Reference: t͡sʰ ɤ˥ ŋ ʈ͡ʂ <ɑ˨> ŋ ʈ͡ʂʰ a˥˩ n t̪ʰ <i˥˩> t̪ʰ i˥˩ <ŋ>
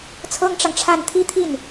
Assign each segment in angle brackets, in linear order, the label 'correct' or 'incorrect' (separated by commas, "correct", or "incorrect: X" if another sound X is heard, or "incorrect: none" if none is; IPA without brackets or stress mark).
correct, incorrect: i˥, incorrect: n